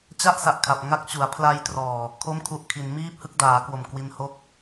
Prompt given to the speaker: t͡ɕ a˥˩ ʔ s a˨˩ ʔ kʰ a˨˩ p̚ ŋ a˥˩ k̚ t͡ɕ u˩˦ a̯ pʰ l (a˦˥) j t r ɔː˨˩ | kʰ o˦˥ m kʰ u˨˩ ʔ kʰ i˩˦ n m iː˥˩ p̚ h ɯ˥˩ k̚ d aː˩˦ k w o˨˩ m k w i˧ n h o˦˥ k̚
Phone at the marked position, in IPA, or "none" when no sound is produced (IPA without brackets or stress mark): a˧